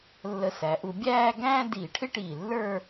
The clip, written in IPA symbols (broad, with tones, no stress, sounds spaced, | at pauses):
lː ə˧ s æ˩˧ ʔ u˧ bʲ æː˥˧ ɡ æ̃ː˥ d iː˧˩ ʈʰ ɪ˥ ʈ iː˧˩ lː ə˞˥˧